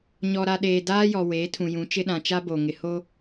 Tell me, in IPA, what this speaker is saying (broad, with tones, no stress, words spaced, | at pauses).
ɲɔ˨ɾa˨ ɗeː˨daː˦jɔ˨ weː˨˦tʰũ˨ jũ˨˦t͡ʃɪ˦ɗã˨ t͡ʃa˦bo˨ ŋɪ˨ho˦